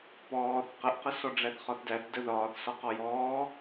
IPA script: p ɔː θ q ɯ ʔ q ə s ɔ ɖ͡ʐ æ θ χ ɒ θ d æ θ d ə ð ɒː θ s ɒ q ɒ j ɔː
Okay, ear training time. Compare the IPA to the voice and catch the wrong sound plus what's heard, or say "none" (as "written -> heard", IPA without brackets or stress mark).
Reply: ɯ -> ə